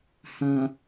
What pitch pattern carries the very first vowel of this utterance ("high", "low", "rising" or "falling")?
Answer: low